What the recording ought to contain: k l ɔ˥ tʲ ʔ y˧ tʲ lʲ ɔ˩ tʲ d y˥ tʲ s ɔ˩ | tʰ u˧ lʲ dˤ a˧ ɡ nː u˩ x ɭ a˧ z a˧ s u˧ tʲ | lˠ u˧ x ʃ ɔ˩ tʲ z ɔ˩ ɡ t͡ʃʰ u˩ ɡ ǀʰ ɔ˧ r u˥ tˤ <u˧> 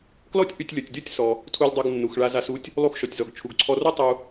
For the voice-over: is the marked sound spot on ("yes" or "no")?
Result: yes